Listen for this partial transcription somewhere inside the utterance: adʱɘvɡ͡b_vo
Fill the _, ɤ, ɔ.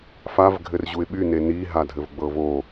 ɤ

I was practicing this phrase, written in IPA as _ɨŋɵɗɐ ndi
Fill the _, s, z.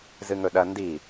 z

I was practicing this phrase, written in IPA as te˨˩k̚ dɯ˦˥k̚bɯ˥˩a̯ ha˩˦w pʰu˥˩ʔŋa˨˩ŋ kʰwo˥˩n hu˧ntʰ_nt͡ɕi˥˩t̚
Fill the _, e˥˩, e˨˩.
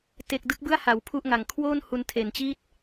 e˨˩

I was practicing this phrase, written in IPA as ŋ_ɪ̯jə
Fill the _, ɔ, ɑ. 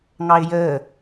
ɑ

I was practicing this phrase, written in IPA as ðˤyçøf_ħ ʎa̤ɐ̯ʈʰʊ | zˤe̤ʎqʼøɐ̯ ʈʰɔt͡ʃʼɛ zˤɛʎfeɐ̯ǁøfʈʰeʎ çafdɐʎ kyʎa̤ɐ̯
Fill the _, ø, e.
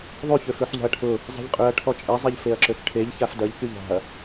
ø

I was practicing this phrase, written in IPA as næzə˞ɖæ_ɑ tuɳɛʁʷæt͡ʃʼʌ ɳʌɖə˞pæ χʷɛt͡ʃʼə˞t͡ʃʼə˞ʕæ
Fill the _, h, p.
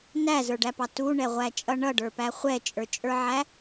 p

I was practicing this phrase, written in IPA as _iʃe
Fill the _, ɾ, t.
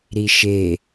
ɾ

